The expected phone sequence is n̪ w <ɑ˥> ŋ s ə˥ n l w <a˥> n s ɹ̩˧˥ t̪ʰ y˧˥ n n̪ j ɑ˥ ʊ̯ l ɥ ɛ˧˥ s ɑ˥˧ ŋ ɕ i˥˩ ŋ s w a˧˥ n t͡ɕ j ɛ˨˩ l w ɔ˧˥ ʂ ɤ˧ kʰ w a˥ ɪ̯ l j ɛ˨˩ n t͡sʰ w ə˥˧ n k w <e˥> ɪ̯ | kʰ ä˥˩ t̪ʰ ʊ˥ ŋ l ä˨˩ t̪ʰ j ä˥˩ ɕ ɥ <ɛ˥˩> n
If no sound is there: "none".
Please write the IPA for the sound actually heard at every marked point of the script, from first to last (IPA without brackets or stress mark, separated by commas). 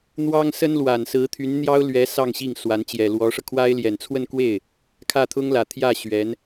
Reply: ɑ˥, a˨˩, e˥˩, ɛ˧˥